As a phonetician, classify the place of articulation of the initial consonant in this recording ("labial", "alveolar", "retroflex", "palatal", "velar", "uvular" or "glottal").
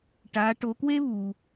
retroflex